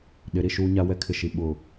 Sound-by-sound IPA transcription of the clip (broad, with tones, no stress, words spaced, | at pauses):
ɗɪ˨˦ɾi˨ʃuː˦ɲa˦ wɛ˦kʰɪ˨ʃi˨ ɓʊ˨